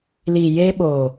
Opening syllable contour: low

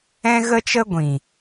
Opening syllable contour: high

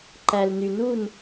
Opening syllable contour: low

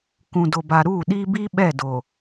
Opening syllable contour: low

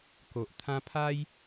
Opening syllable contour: low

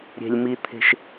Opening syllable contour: low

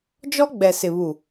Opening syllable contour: high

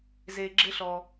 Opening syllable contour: low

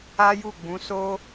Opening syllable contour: high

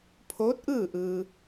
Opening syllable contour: rising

